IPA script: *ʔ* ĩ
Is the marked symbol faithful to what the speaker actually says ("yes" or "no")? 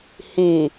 no